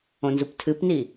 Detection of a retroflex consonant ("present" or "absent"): absent